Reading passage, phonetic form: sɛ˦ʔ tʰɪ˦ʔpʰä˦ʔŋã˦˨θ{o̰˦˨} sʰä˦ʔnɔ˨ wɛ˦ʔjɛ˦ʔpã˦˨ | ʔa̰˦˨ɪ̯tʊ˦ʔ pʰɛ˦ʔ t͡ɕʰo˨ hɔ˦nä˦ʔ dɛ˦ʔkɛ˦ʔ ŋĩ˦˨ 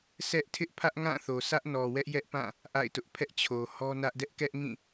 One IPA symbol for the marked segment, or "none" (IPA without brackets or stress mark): o˨